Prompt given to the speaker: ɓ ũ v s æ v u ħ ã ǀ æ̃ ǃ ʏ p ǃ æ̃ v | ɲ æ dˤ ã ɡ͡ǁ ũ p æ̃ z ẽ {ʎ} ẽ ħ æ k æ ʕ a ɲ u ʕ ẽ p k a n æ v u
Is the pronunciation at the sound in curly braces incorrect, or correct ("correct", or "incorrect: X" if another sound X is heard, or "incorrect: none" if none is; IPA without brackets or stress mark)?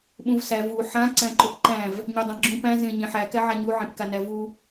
incorrect: ɲ